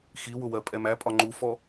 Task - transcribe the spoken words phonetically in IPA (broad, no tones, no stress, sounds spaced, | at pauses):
x i w ʊ w ɜ pʼ ɛ m æ pʼ ɒ ŋ͡ǃ u f ɔ